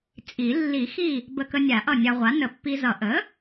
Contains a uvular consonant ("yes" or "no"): yes